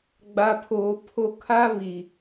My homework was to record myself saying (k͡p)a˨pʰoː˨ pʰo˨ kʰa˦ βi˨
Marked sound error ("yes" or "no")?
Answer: yes